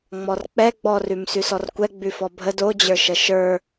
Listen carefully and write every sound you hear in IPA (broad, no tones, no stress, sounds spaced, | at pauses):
ŋ͡m ɔ r k͡p ɛ ɡ͡b ɔ r ʉ m s ʉ s ɔ r kʷ ɛ ɡ͡b ʉ f ɔ bʱ ə d o d͡ʑ ə˞ ʃ ə ʃ ə˞